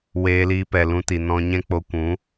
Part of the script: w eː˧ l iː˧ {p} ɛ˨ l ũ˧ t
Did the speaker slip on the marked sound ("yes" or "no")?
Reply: no